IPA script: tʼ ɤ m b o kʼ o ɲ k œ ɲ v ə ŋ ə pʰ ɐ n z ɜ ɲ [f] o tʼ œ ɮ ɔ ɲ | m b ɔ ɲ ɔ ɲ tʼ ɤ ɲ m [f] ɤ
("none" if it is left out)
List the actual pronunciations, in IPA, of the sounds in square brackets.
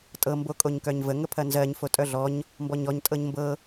f, b

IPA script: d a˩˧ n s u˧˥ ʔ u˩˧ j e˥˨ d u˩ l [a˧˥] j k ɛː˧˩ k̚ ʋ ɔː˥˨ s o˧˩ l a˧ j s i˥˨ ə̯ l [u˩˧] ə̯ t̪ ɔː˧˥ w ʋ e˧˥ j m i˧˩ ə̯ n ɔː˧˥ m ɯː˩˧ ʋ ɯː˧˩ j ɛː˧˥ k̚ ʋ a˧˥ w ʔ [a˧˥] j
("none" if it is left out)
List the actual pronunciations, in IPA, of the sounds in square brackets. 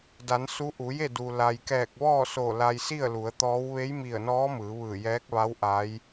a˩, u˩˧, a˧˥

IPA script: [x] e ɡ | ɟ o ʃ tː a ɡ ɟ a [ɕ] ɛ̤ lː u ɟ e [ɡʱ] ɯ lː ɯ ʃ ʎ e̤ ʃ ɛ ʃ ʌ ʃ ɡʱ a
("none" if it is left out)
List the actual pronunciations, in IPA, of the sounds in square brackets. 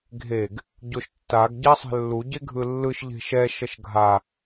ɡʱ, sˤ, ɡʱ

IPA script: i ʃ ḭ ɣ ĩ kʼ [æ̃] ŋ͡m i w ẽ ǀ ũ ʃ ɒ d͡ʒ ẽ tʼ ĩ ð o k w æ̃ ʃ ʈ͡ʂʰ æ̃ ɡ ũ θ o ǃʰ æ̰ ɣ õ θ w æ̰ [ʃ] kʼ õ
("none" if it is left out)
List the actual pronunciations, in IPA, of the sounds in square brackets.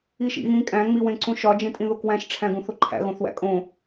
æ̃, none

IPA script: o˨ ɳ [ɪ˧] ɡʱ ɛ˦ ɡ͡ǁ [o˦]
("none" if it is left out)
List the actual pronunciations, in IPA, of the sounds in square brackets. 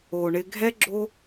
ɪ˧, o˦

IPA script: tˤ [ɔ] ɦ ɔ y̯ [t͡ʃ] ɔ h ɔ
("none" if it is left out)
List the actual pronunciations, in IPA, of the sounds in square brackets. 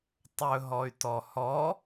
ɵ, t

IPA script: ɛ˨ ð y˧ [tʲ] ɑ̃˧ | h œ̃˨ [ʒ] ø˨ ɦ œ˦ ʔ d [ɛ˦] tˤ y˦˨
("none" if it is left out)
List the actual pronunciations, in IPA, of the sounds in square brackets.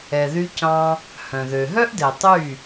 c, ð, ɛ˨

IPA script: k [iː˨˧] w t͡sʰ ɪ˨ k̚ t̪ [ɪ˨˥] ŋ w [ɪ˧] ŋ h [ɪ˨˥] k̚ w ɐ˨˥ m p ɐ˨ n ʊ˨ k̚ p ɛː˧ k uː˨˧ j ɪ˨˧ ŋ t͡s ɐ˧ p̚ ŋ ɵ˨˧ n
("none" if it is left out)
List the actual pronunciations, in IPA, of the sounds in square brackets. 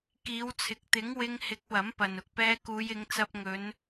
iː˨˧, ɪ˨˥, ɪ˧, ɪ˨˥

